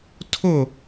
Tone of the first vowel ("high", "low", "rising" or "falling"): falling